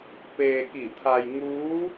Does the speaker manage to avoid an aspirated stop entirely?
no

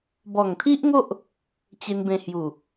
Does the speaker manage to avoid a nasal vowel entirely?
no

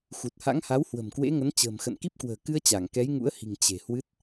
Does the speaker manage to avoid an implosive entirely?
yes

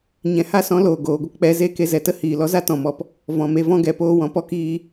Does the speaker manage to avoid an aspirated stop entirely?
yes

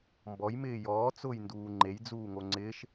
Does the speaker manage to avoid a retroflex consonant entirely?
yes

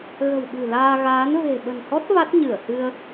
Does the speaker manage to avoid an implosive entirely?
no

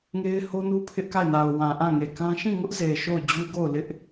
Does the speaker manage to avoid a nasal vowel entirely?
no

